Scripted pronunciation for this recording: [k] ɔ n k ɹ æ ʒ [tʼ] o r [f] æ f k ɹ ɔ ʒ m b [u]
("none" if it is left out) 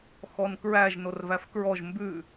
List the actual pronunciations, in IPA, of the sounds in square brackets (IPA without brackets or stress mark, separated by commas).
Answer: x, n, v, ʉ